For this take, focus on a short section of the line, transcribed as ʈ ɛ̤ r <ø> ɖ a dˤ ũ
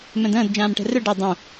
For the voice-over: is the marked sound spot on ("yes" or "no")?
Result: yes